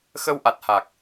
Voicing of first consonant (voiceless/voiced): voiceless